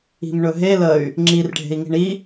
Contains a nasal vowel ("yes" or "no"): no